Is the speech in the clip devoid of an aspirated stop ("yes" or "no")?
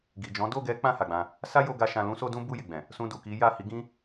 yes